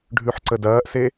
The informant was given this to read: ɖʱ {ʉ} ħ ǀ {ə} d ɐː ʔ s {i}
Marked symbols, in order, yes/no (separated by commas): yes, yes, no